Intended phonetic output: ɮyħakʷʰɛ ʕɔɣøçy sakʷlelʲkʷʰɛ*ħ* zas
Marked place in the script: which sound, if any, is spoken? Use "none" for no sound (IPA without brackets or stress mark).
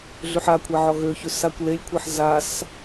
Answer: ħ